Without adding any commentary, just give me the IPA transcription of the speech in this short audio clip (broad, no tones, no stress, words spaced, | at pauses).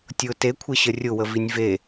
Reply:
tʲʊ tekʷʰeɕə rʲʊwəvinʲ ve